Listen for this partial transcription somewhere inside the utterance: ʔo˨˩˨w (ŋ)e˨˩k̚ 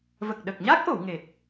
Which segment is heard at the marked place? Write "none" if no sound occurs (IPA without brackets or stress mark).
ŋ